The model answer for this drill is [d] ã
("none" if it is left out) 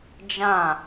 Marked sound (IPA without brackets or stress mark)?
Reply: d͡ʒ